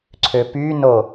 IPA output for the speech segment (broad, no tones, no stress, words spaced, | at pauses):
ǀʰøpyno